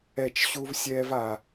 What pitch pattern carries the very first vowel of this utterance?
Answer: falling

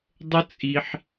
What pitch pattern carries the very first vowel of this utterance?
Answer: high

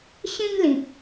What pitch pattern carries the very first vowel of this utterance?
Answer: high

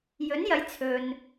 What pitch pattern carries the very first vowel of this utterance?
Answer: rising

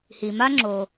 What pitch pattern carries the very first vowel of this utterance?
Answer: low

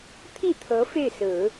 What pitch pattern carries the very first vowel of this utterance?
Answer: falling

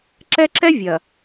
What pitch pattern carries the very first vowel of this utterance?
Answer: high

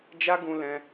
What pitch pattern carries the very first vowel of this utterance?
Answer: high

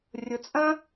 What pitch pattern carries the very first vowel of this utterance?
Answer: rising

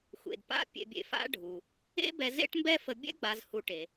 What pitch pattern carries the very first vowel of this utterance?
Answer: low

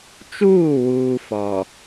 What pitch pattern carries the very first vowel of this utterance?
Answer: falling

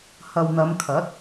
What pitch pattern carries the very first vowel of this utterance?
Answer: low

